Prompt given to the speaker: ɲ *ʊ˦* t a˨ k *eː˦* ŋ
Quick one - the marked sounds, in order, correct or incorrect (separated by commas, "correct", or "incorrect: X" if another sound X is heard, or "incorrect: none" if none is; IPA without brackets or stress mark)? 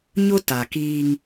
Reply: correct, incorrect: iː˦